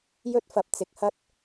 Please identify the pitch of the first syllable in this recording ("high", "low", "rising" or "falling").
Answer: high